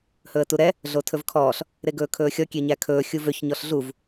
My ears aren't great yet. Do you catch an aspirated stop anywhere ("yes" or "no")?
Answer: yes